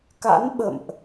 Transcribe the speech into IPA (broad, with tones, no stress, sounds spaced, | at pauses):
k a̰˧˥ n ɓ ə̰˧˨ m ʔ